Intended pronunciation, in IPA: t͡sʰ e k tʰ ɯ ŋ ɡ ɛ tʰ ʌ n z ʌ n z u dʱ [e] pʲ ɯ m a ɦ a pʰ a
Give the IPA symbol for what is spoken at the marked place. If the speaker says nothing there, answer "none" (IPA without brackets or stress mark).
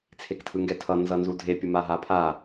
e